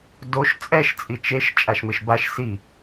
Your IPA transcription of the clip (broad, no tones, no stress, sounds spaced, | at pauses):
d o ʃ t͡sʼ ɛ ʃ t͡sʼ i t͡ʃ e ʃ t͡ʃʼ a ʃ m ɪ ʃ b a ʃ s i